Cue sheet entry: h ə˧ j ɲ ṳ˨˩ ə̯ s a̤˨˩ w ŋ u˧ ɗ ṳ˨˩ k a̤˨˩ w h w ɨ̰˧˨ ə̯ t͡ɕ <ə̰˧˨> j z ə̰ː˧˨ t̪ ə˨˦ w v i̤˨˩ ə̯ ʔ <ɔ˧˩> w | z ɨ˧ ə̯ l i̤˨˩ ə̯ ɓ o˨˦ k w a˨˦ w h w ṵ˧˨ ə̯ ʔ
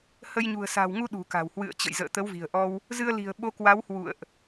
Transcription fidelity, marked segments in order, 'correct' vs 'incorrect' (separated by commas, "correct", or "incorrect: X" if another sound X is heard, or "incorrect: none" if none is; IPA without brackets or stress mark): correct, incorrect: ɔ˧